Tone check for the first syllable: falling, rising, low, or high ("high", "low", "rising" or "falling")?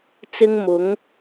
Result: high